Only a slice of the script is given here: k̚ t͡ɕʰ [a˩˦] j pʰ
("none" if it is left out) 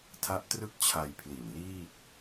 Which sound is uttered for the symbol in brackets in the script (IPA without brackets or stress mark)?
a˧